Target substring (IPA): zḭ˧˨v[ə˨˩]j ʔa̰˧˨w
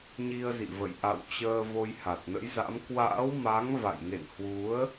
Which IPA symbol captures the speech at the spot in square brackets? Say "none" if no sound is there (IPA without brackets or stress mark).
ə̰˧˨